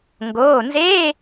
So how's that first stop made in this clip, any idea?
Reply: plain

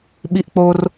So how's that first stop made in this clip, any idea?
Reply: implosive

